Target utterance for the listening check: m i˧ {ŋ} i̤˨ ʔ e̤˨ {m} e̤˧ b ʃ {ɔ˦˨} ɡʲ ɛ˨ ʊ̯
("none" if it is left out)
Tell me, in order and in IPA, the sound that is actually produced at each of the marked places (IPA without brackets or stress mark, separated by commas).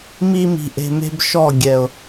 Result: m, m, ɔ˦˨